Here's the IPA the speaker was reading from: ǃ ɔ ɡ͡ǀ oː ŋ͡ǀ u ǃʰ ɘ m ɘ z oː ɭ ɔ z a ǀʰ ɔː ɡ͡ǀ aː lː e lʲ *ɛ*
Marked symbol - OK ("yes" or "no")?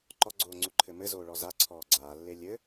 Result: no